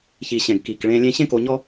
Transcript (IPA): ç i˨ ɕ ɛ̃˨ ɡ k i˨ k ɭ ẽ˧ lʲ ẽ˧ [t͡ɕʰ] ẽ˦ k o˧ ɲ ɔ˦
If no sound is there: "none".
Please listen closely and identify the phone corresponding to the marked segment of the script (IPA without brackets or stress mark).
ɕ